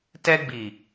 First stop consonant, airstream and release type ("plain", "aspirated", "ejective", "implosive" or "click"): plain